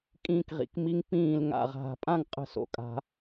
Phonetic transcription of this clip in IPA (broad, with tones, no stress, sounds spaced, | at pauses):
kʼ ĩː˧ k ʁ ḭ˩˧ k m i˧ ŋ p ĩː˧˩ l ŋ a̰˧˩ ʁ ɦ a̤˩˧ pʼ ã˥˧ ŋ qʼ ə̤˥˧ s o̰˧˩ kʼ a̤˧